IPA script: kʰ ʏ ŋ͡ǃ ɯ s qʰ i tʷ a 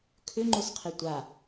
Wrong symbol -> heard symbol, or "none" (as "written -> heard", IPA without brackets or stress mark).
ɯ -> ʊ